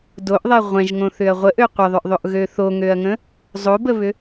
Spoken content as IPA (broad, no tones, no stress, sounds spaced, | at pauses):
d o ʔ ðˤ ɛ ʁʷ ɛ̃ ʒ ŋ õ θ ʏ ɐ̯ ʁʷ ə ʔ ø qʷ ə ðˤ ʏ ʔ ðˤ o ʔ ɣ ø θ o ŋ ø ɐ̯ ŋ ə̃ | zˤ o b ə β ʏ